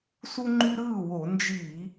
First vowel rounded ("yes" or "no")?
yes